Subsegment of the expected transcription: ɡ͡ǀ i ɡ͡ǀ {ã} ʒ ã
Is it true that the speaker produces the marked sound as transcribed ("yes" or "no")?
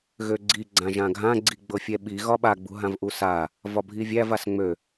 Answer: yes